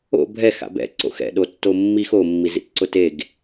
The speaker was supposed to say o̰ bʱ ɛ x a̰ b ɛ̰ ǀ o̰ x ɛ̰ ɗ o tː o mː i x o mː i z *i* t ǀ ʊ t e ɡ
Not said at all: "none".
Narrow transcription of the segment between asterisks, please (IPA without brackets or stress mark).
ḭ